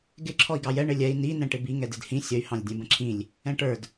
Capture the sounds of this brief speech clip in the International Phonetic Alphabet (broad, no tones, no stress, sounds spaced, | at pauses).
ɡ ɪ ǁʰ ɔ i̯ ɡ ɑ j ɛ ɳ ɪ lʲ ɛ i̯ n i n ɛ̃ ʈ ɪ b i ŋ ɛ d ɪ d h ĩ sʲ ə y̯ h ɑ̃ lʲ dʲ ɛ̃ b ə̃ ǁʰ ĩ lʲ | ɛ̃ ʈ ə˞ d